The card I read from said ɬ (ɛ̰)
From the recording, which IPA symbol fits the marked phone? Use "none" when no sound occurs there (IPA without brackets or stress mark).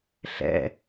ɛ̰